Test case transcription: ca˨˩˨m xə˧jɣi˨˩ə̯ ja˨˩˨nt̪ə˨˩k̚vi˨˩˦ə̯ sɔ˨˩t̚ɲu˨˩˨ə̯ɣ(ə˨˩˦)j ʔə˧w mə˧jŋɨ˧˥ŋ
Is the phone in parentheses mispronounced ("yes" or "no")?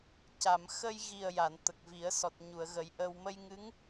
no